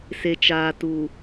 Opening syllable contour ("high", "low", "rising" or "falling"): low